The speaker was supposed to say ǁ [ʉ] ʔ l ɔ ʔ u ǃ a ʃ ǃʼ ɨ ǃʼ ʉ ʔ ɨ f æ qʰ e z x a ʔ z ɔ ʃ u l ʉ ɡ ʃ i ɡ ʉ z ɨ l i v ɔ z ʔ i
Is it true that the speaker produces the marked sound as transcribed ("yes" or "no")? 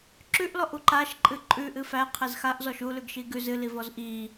yes